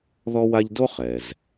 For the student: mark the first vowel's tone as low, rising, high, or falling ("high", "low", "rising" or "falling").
high